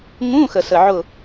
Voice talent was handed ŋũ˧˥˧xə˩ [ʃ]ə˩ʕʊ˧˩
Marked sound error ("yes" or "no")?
yes